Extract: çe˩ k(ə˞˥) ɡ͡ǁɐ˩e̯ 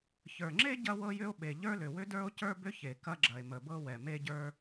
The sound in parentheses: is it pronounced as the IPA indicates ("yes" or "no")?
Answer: no